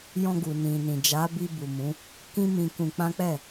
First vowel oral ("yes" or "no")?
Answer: no